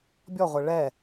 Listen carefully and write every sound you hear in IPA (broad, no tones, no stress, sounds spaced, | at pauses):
bʲ ɔ ʁʷ ɛ ɭ ɛ